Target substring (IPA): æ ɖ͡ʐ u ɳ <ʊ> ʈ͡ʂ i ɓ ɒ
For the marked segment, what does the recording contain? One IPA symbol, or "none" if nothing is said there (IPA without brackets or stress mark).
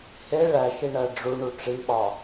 u